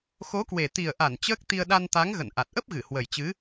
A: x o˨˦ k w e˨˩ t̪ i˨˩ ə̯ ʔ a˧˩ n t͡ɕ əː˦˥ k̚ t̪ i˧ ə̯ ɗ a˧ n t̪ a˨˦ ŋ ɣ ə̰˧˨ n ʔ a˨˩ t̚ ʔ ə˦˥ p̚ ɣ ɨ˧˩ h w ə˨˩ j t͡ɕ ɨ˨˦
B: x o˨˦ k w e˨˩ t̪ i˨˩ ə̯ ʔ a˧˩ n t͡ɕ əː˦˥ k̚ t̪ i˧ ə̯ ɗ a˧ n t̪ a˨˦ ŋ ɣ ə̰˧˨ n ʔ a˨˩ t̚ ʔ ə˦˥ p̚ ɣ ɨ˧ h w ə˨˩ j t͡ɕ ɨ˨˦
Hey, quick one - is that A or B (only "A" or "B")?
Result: A